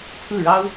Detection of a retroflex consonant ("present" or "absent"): present